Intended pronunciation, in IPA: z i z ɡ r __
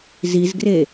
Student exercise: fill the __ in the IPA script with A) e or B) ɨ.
A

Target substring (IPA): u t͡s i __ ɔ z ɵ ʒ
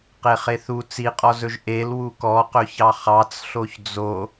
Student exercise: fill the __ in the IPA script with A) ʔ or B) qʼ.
B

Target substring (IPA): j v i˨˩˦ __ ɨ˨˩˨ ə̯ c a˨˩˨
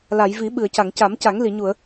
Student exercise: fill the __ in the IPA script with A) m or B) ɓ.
B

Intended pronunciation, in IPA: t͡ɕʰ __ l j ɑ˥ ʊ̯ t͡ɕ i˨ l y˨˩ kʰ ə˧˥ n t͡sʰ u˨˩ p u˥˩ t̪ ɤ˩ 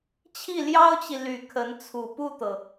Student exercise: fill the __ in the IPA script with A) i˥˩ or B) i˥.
A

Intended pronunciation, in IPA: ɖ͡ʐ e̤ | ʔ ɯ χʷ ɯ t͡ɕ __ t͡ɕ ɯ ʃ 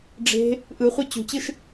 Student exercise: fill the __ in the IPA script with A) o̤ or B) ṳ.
B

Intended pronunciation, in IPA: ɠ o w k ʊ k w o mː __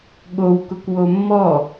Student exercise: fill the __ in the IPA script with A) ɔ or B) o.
A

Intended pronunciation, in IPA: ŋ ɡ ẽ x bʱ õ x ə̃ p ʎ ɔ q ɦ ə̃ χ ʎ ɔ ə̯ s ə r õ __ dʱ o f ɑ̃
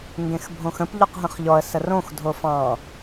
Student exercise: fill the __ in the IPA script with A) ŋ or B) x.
B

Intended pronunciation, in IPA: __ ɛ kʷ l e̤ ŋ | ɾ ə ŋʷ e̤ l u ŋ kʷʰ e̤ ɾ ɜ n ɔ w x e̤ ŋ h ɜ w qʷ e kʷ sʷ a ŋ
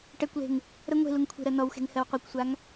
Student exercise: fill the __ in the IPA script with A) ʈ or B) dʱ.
A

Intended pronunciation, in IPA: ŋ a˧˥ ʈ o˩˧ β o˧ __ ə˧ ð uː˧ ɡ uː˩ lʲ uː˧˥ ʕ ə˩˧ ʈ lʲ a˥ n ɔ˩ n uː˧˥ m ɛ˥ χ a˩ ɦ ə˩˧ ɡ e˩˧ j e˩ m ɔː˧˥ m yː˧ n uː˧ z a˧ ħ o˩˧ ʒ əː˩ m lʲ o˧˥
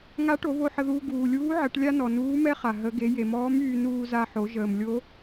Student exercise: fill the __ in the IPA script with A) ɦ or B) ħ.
B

